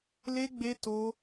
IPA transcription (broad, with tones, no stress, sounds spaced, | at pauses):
l e˦ ɡ͡b e˦ t o˦